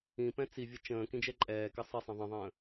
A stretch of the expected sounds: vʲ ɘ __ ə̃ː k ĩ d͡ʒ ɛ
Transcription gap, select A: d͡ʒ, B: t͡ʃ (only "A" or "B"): B